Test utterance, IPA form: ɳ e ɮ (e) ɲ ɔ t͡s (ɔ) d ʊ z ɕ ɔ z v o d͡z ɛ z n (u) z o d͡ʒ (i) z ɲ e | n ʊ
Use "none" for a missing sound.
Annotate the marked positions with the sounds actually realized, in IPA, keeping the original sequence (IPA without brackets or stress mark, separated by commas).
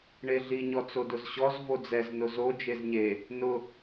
i, o, ʊ, e